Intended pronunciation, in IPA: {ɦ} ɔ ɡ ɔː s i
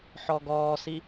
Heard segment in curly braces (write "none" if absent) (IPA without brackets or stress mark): ħ